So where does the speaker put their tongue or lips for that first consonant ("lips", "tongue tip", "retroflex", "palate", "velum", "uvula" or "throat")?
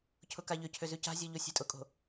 palate